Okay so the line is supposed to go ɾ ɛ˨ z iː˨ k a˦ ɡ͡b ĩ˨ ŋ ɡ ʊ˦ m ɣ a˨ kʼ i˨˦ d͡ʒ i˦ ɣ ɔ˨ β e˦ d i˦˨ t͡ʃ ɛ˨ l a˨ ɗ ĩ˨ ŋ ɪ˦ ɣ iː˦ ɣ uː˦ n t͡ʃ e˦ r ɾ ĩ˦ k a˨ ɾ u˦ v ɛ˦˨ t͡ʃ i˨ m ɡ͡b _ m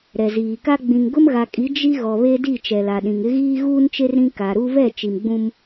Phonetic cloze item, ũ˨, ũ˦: ũ˦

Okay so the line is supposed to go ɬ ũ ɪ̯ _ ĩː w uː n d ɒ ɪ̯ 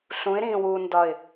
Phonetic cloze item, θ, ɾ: ɾ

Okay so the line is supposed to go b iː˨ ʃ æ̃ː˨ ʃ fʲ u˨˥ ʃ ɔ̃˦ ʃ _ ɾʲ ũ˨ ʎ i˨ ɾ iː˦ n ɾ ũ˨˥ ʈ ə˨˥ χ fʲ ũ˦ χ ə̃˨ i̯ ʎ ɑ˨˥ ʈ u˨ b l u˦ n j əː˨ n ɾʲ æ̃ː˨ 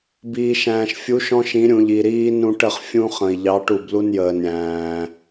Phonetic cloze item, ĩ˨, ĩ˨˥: ĩ˨˥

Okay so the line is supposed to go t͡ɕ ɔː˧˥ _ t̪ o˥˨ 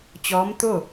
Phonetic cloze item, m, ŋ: m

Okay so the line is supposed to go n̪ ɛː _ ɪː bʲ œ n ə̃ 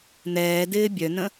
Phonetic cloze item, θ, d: d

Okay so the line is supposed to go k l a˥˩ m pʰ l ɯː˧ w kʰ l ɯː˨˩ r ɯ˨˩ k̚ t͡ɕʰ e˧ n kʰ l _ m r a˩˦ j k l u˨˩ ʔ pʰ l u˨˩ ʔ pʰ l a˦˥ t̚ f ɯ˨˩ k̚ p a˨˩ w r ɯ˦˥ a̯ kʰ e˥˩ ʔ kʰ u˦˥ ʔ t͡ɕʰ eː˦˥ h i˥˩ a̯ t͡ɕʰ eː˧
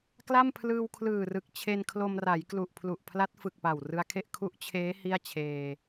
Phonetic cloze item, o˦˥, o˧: o˧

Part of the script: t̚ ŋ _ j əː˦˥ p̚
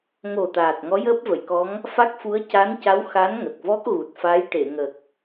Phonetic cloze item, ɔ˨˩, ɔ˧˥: ɔ˧˥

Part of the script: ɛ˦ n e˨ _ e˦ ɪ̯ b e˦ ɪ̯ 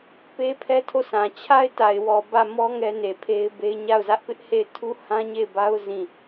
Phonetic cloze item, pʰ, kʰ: pʰ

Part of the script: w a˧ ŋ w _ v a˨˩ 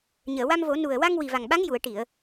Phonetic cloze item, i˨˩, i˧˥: i˨˩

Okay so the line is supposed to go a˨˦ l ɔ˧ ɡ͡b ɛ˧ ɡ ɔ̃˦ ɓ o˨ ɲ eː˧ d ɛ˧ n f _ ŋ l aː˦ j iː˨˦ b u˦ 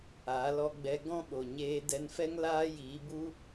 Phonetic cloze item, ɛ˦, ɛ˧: ɛ˦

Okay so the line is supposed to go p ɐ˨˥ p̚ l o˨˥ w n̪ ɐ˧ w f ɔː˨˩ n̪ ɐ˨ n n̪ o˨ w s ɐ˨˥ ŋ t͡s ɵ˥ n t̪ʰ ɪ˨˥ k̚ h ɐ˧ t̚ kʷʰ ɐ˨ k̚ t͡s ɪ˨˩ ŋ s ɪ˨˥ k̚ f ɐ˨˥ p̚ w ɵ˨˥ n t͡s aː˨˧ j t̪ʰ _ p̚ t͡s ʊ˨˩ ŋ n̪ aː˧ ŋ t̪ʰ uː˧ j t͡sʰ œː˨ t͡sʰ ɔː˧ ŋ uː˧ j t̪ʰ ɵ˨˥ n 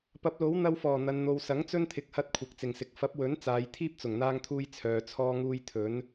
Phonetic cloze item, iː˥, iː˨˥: iː˥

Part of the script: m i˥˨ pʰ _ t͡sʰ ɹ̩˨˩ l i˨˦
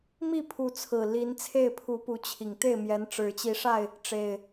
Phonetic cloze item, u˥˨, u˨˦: u˨˦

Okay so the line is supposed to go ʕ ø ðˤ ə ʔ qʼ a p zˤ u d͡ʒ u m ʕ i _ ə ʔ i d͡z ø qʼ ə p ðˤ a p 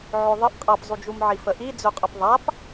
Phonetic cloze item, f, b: f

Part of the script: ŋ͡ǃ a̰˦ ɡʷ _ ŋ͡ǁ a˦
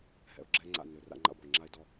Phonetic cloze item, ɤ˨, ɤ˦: ɤ˨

